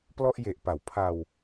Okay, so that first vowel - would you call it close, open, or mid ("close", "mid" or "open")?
mid